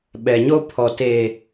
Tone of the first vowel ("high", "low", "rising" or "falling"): low